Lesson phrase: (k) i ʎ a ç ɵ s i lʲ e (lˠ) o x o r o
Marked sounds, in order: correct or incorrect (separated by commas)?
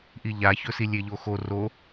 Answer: incorrect, incorrect